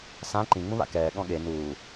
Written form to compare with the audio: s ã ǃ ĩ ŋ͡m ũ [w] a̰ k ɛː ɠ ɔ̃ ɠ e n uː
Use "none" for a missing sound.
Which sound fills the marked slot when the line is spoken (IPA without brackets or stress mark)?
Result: β